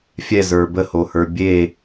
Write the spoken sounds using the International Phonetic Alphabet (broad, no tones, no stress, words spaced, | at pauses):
fʲɛzə˞ bəhohə˞ bʲe